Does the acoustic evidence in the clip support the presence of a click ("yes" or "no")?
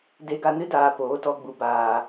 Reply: no